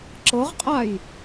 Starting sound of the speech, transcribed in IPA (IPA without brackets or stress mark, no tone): ǁ